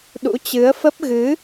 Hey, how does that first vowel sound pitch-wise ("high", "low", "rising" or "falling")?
rising